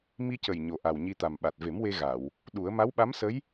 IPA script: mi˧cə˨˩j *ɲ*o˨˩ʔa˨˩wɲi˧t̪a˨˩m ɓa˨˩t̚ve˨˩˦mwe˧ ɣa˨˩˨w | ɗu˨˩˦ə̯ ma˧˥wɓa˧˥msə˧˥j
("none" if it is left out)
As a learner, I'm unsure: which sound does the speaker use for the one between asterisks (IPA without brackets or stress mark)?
ɲ